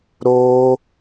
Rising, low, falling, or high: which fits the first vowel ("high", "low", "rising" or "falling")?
high